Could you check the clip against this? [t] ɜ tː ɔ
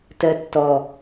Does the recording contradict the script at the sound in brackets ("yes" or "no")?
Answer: no